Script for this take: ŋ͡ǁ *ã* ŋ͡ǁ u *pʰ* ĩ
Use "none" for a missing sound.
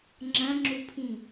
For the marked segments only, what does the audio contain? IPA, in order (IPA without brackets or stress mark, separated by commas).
ɐ̃, pʰ